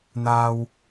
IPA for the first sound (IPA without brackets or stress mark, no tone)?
n̪